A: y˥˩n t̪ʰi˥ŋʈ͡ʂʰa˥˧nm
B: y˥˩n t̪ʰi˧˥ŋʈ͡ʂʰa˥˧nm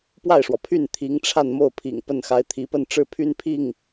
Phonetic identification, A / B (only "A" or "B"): B